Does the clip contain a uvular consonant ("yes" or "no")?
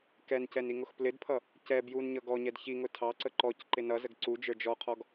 yes